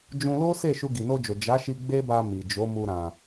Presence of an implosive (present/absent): absent